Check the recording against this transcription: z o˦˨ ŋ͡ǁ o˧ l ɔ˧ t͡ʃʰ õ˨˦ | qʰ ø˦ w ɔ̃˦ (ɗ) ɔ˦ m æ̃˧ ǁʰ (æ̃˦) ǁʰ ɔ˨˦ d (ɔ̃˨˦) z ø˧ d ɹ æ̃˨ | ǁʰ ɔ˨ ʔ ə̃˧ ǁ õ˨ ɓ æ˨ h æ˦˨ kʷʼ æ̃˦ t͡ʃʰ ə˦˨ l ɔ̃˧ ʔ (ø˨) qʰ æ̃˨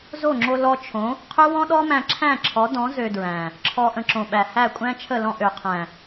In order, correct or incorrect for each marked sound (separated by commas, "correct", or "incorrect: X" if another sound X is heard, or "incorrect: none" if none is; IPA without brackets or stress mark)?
correct, incorrect: æ̃˦˨, correct, correct